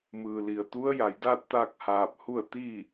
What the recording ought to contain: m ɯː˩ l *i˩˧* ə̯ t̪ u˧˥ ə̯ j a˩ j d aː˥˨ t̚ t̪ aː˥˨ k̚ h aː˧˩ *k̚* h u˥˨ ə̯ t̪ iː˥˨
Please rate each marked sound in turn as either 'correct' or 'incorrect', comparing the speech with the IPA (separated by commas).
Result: incorrect, incorrect